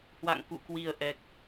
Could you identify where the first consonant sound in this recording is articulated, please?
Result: glottal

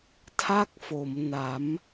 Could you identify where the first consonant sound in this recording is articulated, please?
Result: alveolar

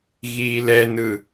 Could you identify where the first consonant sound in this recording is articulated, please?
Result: velar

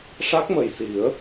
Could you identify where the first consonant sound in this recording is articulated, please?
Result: retroflex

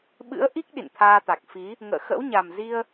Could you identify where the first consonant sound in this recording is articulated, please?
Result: labial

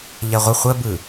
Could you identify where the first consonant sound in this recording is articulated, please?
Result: palatal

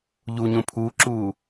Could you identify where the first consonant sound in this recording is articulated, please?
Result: palatal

